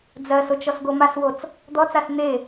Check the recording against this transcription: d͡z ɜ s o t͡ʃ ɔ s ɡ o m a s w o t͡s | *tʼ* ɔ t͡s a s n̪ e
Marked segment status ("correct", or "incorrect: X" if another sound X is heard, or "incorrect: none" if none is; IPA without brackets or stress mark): incorrect: d̪